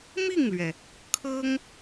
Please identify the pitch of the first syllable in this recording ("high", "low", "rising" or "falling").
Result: falling